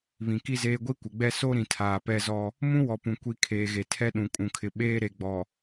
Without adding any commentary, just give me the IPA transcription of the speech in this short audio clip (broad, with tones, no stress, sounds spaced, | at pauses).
β ĩ˨ k i˦ z eː˦ ɡʷ i˦ kʷ ɪ˨ ɡ͡b ɛ˦ s o˦ ɾ ĩ˨ tʰ aː˨ p ɛ˦ z ɔ˦ | m ũ˦ w ɔ˨ p ũ˨ kʷ i˨ kʰ eː˨ ɣ e˨ tʰ ɛ˦ ɗ ũ˨ kʼ ũ˨ kʰ ɪ˨ ɓ eː˦ ɾ e˨ ɡ͡b ɔ˨